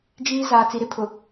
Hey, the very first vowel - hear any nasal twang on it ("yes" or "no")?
no